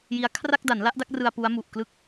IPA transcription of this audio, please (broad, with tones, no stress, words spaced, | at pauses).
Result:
ji˦˥a̯ kʰra˥˩k̚da˩˦nla˦˥ʔ da˦˥k̚rɯ˧a̯ pu˦˥a̯ mu˨˩ʔ klɯ˦˥k̚